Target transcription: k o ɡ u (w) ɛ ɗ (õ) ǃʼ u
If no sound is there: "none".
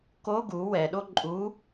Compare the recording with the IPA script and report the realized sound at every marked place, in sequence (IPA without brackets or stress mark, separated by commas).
w, o